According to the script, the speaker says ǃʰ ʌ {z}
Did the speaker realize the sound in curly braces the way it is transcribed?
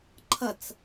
no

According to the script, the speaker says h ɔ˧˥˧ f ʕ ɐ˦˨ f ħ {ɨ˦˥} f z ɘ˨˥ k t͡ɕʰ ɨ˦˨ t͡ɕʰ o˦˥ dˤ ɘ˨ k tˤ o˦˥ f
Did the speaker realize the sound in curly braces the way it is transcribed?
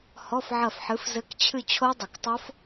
no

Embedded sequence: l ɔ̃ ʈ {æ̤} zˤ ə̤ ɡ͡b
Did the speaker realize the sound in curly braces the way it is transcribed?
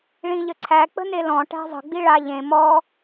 yes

